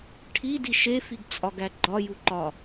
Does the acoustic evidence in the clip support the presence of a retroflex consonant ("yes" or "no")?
yes